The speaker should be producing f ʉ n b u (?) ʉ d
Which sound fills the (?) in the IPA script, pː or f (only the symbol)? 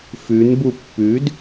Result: pː